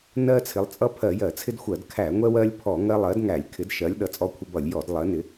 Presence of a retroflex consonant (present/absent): absent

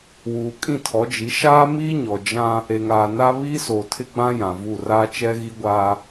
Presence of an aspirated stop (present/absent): present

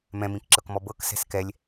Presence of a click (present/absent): present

